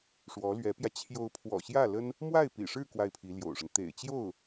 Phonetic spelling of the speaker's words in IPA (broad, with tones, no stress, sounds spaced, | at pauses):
ʂ w ɔ˧˥ l ɥ ɛ˧˥ p j ä˧ t͡ɕʰ j o˧˥ ʊ̯ pʰ w ɔ̰˨˩ ɕ j ä˥˩ l ə˥ n | m w a˥˩ ɪ̯ p ḭ˨˩ ʂ ɻ̩˥˧ k w a˥˩ ɪ̯ pʰ i˧˥ l j o̰˨˩ ʊ̯ ʂ ə˦ n t̪ ḛ˨˩ ɪ̯ t͡ɕ j o˥˩ ʊ̯